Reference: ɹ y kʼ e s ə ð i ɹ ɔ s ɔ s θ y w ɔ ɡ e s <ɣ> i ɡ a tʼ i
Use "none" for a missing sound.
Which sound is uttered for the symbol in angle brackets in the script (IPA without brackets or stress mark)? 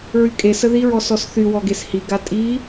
h